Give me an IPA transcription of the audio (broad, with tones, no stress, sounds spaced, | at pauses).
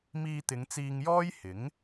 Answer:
m iː˧ t̪ ɪ˨˧ ŋ t͡s iː˧ ŋ j ɔː˥ j h ɪ˨˥ ŋ